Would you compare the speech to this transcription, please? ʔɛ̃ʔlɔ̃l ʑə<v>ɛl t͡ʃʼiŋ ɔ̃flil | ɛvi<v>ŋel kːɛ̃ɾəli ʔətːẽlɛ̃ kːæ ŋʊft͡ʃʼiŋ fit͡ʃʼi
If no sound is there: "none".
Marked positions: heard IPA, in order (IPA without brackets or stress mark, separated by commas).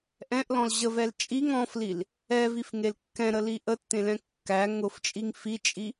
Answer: v, f